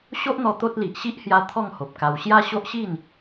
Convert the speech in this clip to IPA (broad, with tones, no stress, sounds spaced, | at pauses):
ɕ o˦ ʔ n̪ ɔ˧ t̪ o˦ t̚ l i˨ ʔ ɕ i˦ ʔ h j a˧ t̪ʰ ɔ˥˧ ŋ h o˨ p̚ k a˧ w ɕ j a˦ ɕ o˦ ʔ ɕ i˥˧ n